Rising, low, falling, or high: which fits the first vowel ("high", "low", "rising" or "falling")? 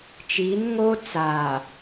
rising